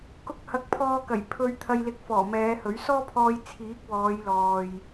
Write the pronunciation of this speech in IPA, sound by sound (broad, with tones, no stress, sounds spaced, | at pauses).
k ʊ˧ k̚ h ɐ˨˥ k̚ pʰ ɔː˧ k ɐ˨˩ j pʰ ɵ˧ ɥ t̪ʰ ɐ˧ j l ɪ˧ k̚ f ɔː˨˩ m ɛː˨˧ h ɵ˨˥ ɥ s ɔː˥ pʰ ɔː˧ j t͡sʰ iː˨˥ k̚ w ɔː˨˧ j l ɔː˨ j